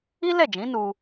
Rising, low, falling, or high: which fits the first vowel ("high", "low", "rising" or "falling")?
high